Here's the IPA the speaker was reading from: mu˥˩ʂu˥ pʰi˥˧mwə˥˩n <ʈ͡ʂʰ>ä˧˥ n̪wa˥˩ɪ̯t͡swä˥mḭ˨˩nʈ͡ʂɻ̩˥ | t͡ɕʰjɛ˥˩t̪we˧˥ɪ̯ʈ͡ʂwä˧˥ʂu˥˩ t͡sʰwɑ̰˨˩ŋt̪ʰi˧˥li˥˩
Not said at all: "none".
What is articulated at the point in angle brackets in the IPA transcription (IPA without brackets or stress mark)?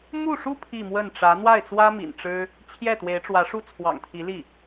ʈ͡ʂ